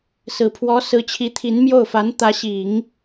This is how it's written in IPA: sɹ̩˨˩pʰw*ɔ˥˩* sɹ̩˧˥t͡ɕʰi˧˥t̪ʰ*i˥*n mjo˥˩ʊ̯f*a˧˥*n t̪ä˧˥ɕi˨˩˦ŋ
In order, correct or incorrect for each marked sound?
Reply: incorrect: ɔ˧˥, incorrect: i˧˥, correct

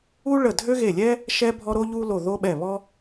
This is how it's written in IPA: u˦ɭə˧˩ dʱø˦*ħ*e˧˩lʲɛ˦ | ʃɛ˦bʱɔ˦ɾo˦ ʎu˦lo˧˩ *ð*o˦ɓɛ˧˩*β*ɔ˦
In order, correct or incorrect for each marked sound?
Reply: incorrect: ɣ, correct, correct

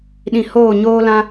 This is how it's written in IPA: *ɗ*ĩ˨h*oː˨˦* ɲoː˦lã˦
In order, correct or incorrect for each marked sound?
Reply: correct, incorrect: oː˦˨

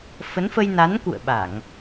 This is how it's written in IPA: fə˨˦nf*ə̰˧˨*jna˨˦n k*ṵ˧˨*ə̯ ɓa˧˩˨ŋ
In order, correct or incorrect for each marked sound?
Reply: incorrect: ə˧, correct

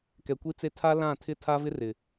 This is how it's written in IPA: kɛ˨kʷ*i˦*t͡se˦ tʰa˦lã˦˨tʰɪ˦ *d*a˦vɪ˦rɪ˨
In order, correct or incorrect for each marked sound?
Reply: correct, incorrect: tʰ

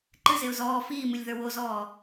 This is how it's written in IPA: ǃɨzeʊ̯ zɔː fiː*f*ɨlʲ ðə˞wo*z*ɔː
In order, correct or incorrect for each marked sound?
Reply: incorrect: m, correct

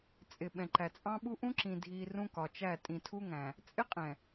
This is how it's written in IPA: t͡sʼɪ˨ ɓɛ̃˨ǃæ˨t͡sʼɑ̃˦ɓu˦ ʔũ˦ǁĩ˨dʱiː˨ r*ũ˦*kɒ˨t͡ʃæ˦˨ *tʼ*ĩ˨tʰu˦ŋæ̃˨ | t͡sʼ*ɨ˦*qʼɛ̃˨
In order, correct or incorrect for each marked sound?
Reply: correct, correct, incorrect: ɪ˦

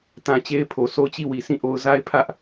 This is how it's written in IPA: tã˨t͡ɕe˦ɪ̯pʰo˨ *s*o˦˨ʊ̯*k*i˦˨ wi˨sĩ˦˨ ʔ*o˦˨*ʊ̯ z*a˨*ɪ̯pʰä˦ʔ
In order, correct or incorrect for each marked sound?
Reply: correct, incorrect: t͡ɕ, incorrect: o˦, incorrect: a˦

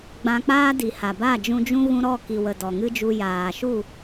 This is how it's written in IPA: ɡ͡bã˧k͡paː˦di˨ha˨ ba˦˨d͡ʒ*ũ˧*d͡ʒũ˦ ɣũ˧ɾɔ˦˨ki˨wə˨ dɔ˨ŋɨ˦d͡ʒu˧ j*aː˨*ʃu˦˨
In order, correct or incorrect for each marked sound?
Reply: correct, correct

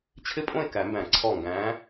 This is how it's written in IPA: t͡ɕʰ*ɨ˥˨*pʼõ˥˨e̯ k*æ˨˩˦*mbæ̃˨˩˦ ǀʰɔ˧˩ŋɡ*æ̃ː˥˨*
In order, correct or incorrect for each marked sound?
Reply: incorrect: ɪ˥˨, correct, incorrect: æ̃ː˨˦

